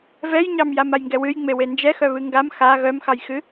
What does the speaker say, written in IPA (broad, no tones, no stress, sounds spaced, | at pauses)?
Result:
v ɛ j ɲ ɑ m j a m a j ŋ ɡ ɛ w ɨ j ŋ͡m e w e n d͡ʒ ɛ x œ β ɨ ŋ ɡ a m x a ɣ œ m x ɑ j x ɨ